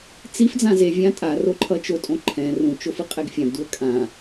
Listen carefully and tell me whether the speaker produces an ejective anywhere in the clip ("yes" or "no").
yes